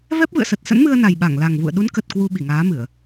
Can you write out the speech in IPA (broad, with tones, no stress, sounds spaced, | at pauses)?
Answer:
v ɛ˦˥ p̚ v ɨ̰˧˨ ə̯ s ə˨˩ t̚ s ə̰˧˥ n m ɨ˧ ə̯ n a˨˩ j ɓ a˧˩ ŋ l a˨˩ ŋ v ṵ˧˨ ə̯ ɗ u˨˦ n k ə˨˩ t̚ k w u˧ ɓ i˧˩ ŋ aː˨˦ m ɨ˧˩˨ ə̯